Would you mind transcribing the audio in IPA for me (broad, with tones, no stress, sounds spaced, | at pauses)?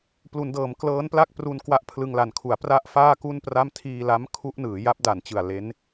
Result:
p l u˩˦ n d ɤː˩˦ m k l ɤː˦˥ n p l a˥˩ k̚ p r u˧ n k w a˦˥ ʔ pʰ l ɯ˧ ŋ l a˨˩ n kʰ u˩˦ a̯ p r a˥˩ ʔ f aː˥˩ k u˥˩ n p r a˥˩ m tʰ iː˧ l a˦˥ m kʰ u˦˥ ʔ n ɯː˩˦ j a˦˥ p̚ d a˨˩ n t͡ɕ ɯ˨˩ a̯ l e˦˥ n